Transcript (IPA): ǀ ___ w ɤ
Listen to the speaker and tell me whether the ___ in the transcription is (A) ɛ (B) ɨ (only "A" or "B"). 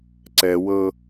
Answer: A